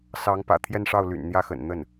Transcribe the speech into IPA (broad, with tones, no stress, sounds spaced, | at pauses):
s ɑ˧˥ ŋ p ä̰˨˩ t̪ʰ j ɛ˥˧ n ʂ ɑ˥˩ ʊ̯ l y̰˨˩ n n̪ j ä˥˩ x ə̰˨˩ n n̪ ə˥˩ n